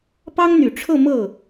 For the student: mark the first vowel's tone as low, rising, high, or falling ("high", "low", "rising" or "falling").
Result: high